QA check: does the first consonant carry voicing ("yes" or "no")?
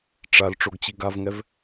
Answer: no